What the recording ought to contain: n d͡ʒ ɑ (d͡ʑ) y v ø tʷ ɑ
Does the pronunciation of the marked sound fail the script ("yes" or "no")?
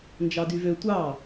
yes